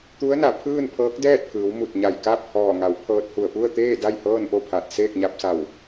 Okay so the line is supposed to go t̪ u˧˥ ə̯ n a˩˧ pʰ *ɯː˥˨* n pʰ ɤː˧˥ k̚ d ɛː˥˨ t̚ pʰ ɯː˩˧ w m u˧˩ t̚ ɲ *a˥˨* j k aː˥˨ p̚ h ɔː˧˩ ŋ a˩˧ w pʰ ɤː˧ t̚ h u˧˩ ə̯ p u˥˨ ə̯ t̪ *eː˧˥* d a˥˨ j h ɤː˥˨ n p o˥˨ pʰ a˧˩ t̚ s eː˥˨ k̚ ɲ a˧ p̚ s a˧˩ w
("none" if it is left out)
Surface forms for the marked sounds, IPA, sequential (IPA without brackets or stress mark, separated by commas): ɯː˥˨, a˧˩, eː˥˨